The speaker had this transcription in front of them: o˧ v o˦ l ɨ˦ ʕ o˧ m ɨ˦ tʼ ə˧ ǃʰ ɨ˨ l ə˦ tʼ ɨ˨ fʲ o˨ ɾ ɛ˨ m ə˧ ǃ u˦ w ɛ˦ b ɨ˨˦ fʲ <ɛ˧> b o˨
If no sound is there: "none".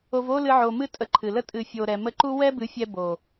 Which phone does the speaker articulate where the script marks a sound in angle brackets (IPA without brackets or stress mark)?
ɛ˧